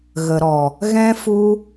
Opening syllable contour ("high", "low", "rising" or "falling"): low